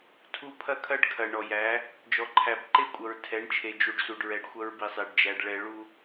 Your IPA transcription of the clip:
tʰ u˦ pʰ ɐ˦ kʰ ɐ˦ ɖ kʰ ɐ˨ ɳ ɔ˨ j æ˨˦ | d͡ʒ ɔ˨ ǃʰ æ˨ b ǃ e˦ kʷʼ ɐ˨ ɹ tʰ ɛ˨˦ ɳ t͡ʃʰ e˨ d͡ʒ u˨ ɖ s u˨ ɖ ɹ ɛ˨ ɖ xʷ ɐ˦ ɹ b i˨ sˤ e˨ ɖ d͡ʒ æ˨ ɖ ɭ ɛ˨ ɭ u˦

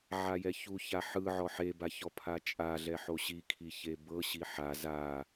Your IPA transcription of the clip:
ʕ a j ɛ ç u ç a ħ ɯ ʕ ɔ ħ e b a ç ɔ pʰ a t͡ʃʼ a ɮ ɛ ħ o ɕ i kʰ i ç e b ɤ ɕ i ħ a z a

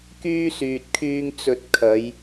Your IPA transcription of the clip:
k yː˥ s yː˨ t̚ kʰ yː˧ ŋ t͡s ɵ˨ t̚ kʰ ɐ˨˧ j

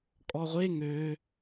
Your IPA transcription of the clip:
kʼ ɔ ʁʷ e ŋ ø

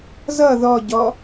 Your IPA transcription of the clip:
z ʌ ð ɔ ɟ ɔ

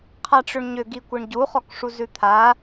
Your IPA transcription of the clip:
qʰ a ʈ͡ʂ ʏ ɳ ɲ ʏ ɡ i kʷ i ɳ ɟ u χ ɔ k ʂ u z ʉ t̪ʰ a

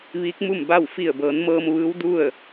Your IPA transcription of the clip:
ʋ iː˧˥ k̚ m u˥˨ m b a˥˨ w f i˧˩ ə̯ b ɤː˩˧ n m ɤː˧ m ʋ ɯː˧˥ w d u˥˨ ə̯

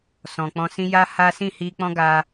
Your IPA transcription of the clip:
s ɔ̃˨ k͡p ɔ̃˧ s ĩ˦ j a˦ h a˦ s ĩ˦˨ h i˧ k͡p ɔ̃˦ ɡ a˧

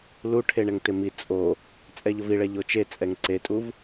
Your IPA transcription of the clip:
l u ʈʰ e ɳ ɛ ŋ t ɪ m i t͡sʼ o | t͡sʼ ɛ ʎ ʊ v i ɭ ɛ ʎ o t͡ʃ e t͡sʼ ɛ ŋ ǀ e tʼ u v

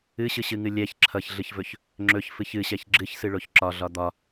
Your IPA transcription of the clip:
ɨ ɕ ɨ ɕ ɨ ŋ ɨ lʲ ɛ ç ǁʰ ʌ ç ɮ ɨ ç v ɵ ç | ŋ͡ǁ ɵ ç f ɨ ç ɨ ɕ ɛ ç ɡ͡ǁ ɨ ç s ɨ ɭ o ç ǁ ɒ ɮ ɒ d̪ ɒ

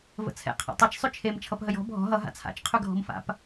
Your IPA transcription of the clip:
v ə̰ t͡sʰ ɛ̰ qʰ a̰ tˤ ʌ t͡ʃ sˤ ʉ t͡ʃʰ e m t͡ʃʰ ʌ p ɦ ə j ɔ̤ bʱ ɔ̤ ɦ ʌ ɦ a̰ t͡sʰ a̰ t͡ʃ qʰ ʉ ɡʱ ɔ̤ m f a̰ p

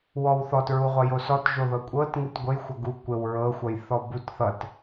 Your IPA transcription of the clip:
w ɔ w θ ɔ t ɹ u ʁʷ ʌ j o s ɔ t ʒ o ð ɤ kʷʼ ɤ t ŋ ɨ t ɡʷ ɘ j xʷ ʌ ɡ u kʷ ɘ w ɹ ɤ xʷ ʌ j θ ɔ b u t θ ʌ t

